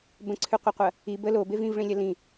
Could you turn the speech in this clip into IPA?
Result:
b ə̃ ǀʰ ʉ qʷ ɐ qʷ ɐ | i b ə l o b e v ĩ v ɭ ĩ lʲ ɐ l ĩ

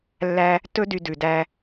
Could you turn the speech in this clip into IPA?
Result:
lː æ˦ | t ɵ˦ d y˧ d ʉ˨ d æ˧

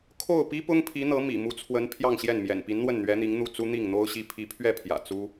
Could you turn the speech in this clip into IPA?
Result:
kʰ o˥˩ ʊ̯ p i˥ p ʊ˥ ŋ pʰ i˧˥ n̪ ɤ˧˥ m ḭ˨˩ m u˧˥ t͡sʰ w ə˧˥ n pʰ j ɑ˥˧ ŋ ɕ j ɛ˥˩ n m j ɛ̰˨˩ n p i˧˥ n n̪ w ə˥˩ n n̪ ɥ ɛ˧˥ n̪ i˧˥ ŋ n̪ u˥˩ t͡s u˥ n̪ i˥˩ ŋ n̪ o˥ ʊ̯ ɕ i˥ pʰ i˧˥ pʰ ɥ ɛ˥˩ pʰ j ä̰˨˩ t͡s u˥

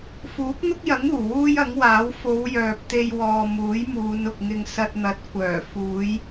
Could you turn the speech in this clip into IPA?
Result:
f uː˨˥ k̚ n̪ ʊ˥ k̚ j ɐ˨˥ ŋ uː˨˩ w uː˥ j ɐ˨˥ ŋ w aː˨˥ w f o˨˧ w j œː˨ p̚ t̪ e˧ j w ɔː˨ m uː˨˥ j m uː˨˧ n ʊ˨ k̚ ŋ ɪ˧ ŋ s ɐ˧ t̚ n̪ ɐ˨˥ t̚ kʷ œː˨˩ f uː˨˧ j

